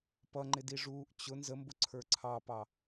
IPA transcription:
p ʌ ŋ͡ǃ ɪ d i ʐ uː ʔ t͡ɕ ʊ n z ə m b ʊ ǀʰ ə˞ ǀʰ ɑ p ɑ

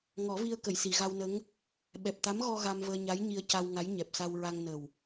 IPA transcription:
ŋ ɔ˨˩˦ v i˧ ə̯ k ə˨˩˨ j s i˨˩˨ ɣ a˧ w n ə˧˥ ŋ | ɓ ɛ˨˩ p̚ t̪ a˧˥ m ɣ ɔ˧ ɣ a˧ m v əː˧ ɲ a˧˥ j ɲ i˧ ə̯ c a˧ w ŋ a˧˥ j ɲ ɛ˨˩ p̚ s a˧ w ɹ a˧ ŋ n ə˨˩ w

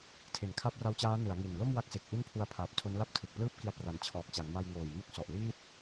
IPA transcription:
tʰ e˩˦ n kʰ a˦˥ p̚ r a˦˥ w t͡ɕ aː˦˥ n ɯ˩˦ a̯ ŋ i˨˩ n l o˥˩ m w a˦˥ k̚ s e˨˩ k̚ ʔ i˥˩ n pʰ u˧ a̯ pʰ aː˨˩ p̚ tʰ o˦˥ n l a˥˩ p̚ tʰ ɯ˨˩ k̚ p l ɯː˥˩ p̚ k i˧ a̯ p r a˨˩ n t͡ɕʰ ɔː˨˩ k̚ t͡ɕ a˩˦ ŋ m a˧ j ŋ oː˨˩ j m u˦˥ k̚ s ɔ˨˩ ʔ l iː˥˩ t̚

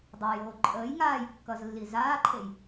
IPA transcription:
dˤ a j oː ǃʼ əː j ŋ aː j kː ʌ z lː i z aː ǃʰ e j

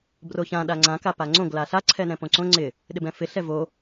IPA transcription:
b r o ç ã ɗ a ŋ͡ǀ ã k a p a ŋ͡ǀ õ ɡ l a ɬ a ǀʰ ɛ n ɛ̃ p õ ǀ õ ŋ͡ǀ ɪ | ɗ ɪ b ɛ̃ f ɪ ɬ ɛ v o

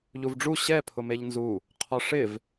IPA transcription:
ʎ u v ɖ͡ʐ u ɕ ɛ pʰ ʊ m e ʎ n z u | qʰ ɔ ʂ ɪ v

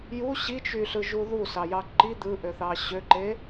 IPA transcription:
j u ɕ i t͡ʃ y ɬ ɯ ʒ u ð u s ɑ j ɑ ǃ i d̪ ɯ ʔ ø θ ɑ ɕ ø ǃ e

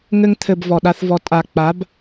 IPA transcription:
ŋ ɘ˧ ŋ t̪ʰ ɘ˨ b v ɔ˨ ɗ a˦ θ v ɔ˧ tʼ a˨ k͡p a˨˦ b

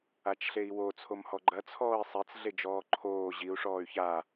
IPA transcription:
a t͡ʃ ɬ e i̯ w o t͡sʰ o m h ɔ ɡ͡ǃ ɐ t͡sʰ ɔː i̯ sˤ e t͡s ɮ e d͡ʒ ɔː ǃʰ oː ʑ i u̯ ʂ ɔː y̯ ç a

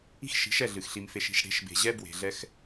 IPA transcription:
i̤˦ x ʃ i̤˨˦ ʃ ɛ˦˨ ɮ ɨ˨ x ɬ i˨ m f e˨ ʃ i̤˨ ʃ ɽ e̤˨˦ ʃ b e̤˨ ʑ ɛ˦ b w e̤˨ ɮ ɛ˦ x

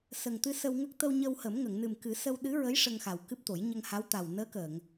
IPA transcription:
s ə˨˩ ŋ t̪ ɨ˧ s ə˧ w ŋ ə˦˥ k̚ t̪ ə˧ w ɲ ə˧ w h ə˨˩˦ m ŋ ə˨˩˨ ŋ n ɨ˨˩ m k ɨ˨˩˦ s ə˧ w ɗ ɨ˧˥ ɹ ə˧˥ j ʂ ə˧ ŋ x a˨˩ w k ɨ˦˥ p̚ t̪ o˨˩˦ j ɲ ə˧ ŋ h a˧˥ w t̪ a˨˩ w n əː˧˥ k əː˨˩˨ ŋ

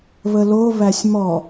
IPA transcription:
β ə l o β æ sʲ m ɔ

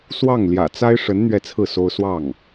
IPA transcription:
s w ɑ˥˩ ŋ l j ä̰˨˩ t͡s a˥ ɪ̯ ʂ ə˧˥ n n̪ ɥ ɛ˥˧ t͡sʰ ɹ̩˥˩ s o˥ ʊ̯ s w ɑ˥˩ ŋ

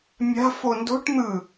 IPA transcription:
mʲ a̤ f o n d o̤ ʈ n̪ ɯ

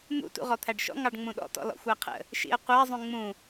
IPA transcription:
n̪ ṵ t ṵ ʁ ɔ t̪ʰ æ ɖ ʃ ɔ̰ ŋ ɑ ɖ ŋ͡m ũ ɗ ɔ̰ t ɔ̰ l ɔ̰ xʷ æ qʰ ə̰ | ʃ ḭ ə̯ qʷ æ zˤ ũ ŋ͡m ũ

